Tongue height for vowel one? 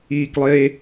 high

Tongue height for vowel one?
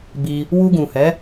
high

